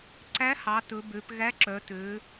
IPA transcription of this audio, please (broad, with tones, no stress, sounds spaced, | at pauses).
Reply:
ǀ æ˧˥ h ɑ˩˧ t ɵ˩˧ b ø˩˧ p ɣ æ˧˥ ǁ œ˩˧ t ø˩˧